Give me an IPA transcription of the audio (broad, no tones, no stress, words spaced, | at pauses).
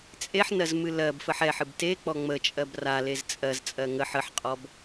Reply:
t͡sʼeħnɜz mɨlɜbfəħ ɛħɨb tek͡pɔ ŋ͡mət͡ʃʼɜb ralez t͡sʼɜzt͡sʼɜ ŋəħ əħqʼɔb